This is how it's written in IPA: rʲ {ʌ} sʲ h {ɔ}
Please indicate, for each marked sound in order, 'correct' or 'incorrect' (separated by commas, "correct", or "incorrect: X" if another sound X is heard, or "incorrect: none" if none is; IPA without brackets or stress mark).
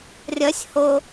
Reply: correct, incorrect: o